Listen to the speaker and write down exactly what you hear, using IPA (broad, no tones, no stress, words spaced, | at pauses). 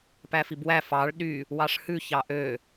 pæfibwæ fɑɭ ɗy | wɑʂhʉ çɑʔø